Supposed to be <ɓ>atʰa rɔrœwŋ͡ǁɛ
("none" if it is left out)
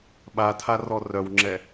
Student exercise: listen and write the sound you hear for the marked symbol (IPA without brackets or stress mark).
ɓ